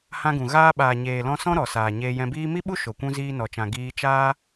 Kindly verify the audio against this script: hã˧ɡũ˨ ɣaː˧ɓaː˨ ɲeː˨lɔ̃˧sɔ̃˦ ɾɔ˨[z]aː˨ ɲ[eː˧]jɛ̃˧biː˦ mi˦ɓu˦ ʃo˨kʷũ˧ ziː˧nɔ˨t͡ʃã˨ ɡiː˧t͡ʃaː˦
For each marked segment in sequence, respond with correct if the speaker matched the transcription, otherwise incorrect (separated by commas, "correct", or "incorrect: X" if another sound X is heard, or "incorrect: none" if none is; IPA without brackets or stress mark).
incorrect: s, correct